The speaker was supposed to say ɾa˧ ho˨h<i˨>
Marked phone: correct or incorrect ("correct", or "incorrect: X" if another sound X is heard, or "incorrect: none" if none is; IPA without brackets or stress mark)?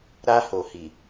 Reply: correct